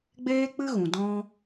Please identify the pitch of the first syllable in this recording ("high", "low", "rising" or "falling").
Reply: high